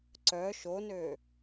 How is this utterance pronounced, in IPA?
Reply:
ǀ œ ʃ o n ø

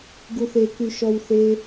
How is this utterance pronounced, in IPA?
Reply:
ɡ u θ e k y ʃ ɔ w θ e

